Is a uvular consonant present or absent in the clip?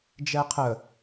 present